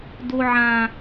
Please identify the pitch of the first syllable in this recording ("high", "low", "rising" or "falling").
high